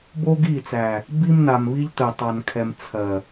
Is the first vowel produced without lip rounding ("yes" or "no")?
no